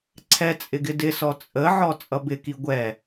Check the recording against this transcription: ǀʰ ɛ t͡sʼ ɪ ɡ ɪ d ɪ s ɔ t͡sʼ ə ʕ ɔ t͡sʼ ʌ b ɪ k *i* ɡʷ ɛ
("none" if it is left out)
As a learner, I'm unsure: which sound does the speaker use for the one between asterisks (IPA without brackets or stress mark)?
i